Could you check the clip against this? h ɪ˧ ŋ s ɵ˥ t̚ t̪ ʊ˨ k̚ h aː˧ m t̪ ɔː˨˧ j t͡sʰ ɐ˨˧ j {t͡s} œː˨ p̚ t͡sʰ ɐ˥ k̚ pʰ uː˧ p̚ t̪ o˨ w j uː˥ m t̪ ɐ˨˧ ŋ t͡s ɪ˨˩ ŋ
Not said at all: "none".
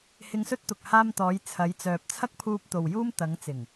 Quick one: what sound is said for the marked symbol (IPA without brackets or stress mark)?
t͡s